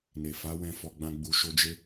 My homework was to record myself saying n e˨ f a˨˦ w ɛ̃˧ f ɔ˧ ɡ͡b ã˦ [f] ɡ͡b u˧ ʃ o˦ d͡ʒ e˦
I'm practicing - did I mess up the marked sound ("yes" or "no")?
yes